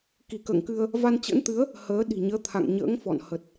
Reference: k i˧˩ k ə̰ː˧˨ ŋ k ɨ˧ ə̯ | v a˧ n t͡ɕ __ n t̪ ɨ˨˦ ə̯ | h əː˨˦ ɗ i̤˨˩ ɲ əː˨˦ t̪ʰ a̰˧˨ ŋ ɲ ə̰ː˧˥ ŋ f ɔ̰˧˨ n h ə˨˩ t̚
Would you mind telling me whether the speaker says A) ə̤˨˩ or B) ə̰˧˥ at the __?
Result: B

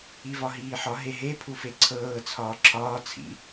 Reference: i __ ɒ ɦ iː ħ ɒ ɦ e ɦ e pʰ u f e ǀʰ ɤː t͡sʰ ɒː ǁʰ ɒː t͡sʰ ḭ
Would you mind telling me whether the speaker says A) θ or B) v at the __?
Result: B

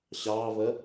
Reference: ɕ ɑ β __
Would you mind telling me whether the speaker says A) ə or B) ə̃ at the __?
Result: A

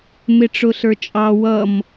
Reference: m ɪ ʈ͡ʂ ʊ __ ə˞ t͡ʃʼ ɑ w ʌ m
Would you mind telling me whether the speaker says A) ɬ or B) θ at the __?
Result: A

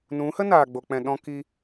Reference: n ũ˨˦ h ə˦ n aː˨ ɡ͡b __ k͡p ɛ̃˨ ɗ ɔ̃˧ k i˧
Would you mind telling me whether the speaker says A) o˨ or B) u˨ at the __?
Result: A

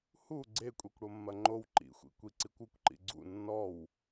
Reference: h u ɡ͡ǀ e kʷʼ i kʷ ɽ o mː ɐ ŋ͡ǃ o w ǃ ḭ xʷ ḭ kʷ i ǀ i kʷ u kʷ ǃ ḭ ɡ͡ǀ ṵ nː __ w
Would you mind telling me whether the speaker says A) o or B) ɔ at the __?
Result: B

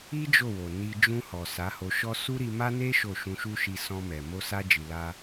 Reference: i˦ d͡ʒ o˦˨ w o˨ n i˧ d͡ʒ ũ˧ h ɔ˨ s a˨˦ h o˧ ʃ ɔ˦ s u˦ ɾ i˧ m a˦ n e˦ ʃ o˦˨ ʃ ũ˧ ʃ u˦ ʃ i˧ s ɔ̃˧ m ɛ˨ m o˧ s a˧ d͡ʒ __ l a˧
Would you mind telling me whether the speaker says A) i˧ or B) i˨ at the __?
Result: B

